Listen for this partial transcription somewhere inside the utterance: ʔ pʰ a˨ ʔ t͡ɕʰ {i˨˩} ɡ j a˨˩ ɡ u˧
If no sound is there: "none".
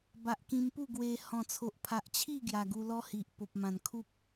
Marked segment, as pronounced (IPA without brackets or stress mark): i˥˧